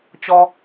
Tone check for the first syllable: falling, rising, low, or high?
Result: high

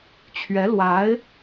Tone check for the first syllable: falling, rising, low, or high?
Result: rising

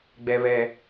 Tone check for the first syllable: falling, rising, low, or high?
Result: high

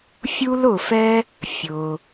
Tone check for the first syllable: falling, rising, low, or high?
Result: high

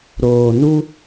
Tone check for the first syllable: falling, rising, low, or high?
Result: low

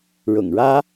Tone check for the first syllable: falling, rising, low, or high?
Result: low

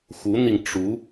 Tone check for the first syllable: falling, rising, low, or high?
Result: rising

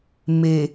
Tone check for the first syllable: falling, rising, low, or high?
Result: low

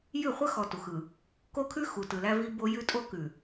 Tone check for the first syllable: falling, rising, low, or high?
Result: falling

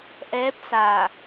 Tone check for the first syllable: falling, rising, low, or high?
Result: rising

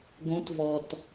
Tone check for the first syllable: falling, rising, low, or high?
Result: rising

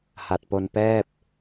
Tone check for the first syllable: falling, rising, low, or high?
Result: low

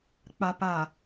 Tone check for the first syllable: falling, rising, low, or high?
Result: low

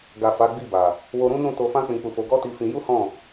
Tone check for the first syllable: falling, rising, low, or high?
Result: low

